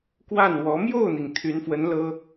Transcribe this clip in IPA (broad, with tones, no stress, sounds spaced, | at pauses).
k w a˥˩ n w ɔ˧˥ m j o˥˩ ʊ̯ n̪ i˩ ŋ t̪ʰ y˧˥ n f w ə˧˥ n l ɤ˥